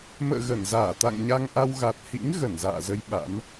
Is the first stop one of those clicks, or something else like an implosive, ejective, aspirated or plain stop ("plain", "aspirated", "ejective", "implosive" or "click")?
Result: plain